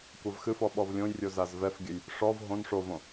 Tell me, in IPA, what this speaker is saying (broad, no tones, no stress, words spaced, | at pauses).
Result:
kʷavxɨfɔ ɓɔvlʲõjrʲo zazvɛfɡʲɘj | ʂɔv ɦõn ʂovõ